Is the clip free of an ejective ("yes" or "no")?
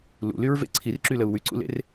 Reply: yes